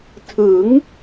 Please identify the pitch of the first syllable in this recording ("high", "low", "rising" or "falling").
rising